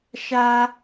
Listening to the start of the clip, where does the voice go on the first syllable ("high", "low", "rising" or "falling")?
high